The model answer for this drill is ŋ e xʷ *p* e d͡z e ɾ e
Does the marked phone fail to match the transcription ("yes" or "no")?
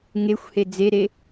yes